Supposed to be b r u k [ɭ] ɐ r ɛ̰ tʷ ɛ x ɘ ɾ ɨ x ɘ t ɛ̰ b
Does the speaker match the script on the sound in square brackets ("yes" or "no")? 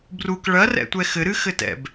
yes